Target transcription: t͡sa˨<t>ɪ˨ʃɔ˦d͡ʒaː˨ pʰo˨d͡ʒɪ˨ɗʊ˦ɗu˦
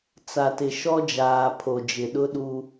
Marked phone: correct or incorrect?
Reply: correct